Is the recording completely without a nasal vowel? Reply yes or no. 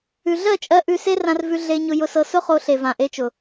no